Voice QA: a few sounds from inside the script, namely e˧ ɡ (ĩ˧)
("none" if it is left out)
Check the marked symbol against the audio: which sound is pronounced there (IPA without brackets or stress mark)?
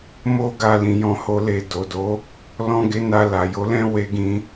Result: ĩ˧